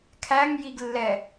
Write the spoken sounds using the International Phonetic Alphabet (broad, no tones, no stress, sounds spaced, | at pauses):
kʰ æ ŋ j i ɡ lː ɛ